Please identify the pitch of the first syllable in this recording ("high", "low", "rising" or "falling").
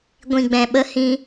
low